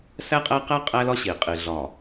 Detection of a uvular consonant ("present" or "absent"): present